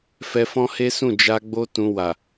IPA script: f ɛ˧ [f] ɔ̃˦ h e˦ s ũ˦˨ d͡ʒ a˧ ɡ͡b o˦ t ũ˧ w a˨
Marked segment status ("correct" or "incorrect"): correct